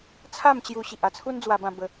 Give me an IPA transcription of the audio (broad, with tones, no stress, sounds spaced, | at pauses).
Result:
t͡sʰ a˥˧ m t͡ɕ j u˧ ɕ i˨ ʔ a˧ t͡sʰ u˦ n d͡z w a˧ b ã˧ b ə˧